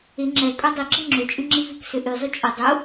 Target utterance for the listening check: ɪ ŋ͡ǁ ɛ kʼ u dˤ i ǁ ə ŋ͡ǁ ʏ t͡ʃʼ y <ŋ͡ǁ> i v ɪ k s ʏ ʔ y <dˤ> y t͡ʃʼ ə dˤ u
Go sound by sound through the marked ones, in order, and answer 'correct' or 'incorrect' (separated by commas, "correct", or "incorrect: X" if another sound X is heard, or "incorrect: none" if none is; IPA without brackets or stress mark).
correct, incorrect: zˤ